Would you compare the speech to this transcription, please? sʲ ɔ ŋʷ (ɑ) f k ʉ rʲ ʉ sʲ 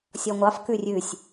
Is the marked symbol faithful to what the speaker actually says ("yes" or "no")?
yes